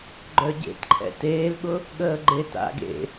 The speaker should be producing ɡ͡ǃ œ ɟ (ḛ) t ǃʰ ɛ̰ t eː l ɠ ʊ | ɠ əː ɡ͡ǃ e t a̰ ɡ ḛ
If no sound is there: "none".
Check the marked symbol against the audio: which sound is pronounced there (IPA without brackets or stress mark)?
ḛ